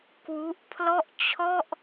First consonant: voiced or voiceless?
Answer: voiceless